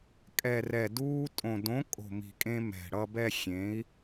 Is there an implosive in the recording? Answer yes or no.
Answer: no